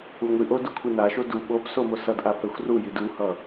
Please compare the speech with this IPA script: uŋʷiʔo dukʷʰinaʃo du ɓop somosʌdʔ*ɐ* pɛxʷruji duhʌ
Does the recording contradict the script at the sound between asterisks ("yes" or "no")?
yes